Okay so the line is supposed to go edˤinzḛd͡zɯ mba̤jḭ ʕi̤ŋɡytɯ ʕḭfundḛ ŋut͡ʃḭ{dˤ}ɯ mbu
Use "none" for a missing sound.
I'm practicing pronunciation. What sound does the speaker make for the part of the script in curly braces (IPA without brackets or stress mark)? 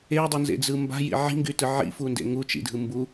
dʱ